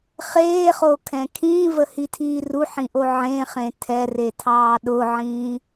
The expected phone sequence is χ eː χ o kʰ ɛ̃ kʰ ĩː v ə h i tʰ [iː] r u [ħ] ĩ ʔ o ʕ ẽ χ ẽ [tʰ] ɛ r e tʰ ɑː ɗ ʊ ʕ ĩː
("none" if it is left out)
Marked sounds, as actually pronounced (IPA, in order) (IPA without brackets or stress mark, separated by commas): iː, ħ, tʰ